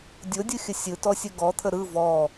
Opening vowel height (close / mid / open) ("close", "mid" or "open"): mid